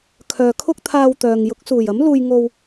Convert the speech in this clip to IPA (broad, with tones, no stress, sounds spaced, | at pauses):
kʰ œː˨ kʰ ʊ˥ k̚ t̪ʰ aː˧ w t̪ œː˨ ŋ j ʊ˨˥ k̚ s uː˨˩ j ɐ˨˥ m l uː˧ j ŋ o˧ w